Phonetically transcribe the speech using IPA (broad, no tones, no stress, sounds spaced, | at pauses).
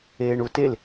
eː ɳ u t e l